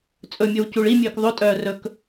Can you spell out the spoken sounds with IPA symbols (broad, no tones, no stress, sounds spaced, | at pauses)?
t͡sʼ ɵ mʲ ɵ w c u ɭ i mʲ øː k ðˤ o tʼ œː r ɵ k